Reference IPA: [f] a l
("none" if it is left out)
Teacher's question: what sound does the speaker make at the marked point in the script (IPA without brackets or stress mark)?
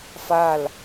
f